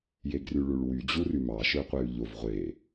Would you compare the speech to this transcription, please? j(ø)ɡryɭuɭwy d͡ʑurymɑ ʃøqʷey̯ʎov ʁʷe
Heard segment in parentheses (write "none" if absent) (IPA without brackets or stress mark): e